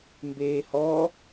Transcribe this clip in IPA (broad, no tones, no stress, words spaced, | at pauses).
mbeːhɔ